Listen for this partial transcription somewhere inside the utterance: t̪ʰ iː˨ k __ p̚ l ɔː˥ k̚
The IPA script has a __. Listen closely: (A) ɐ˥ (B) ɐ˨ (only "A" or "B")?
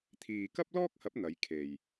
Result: A